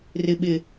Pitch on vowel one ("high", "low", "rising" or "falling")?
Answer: low